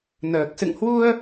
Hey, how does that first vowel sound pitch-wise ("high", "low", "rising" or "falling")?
low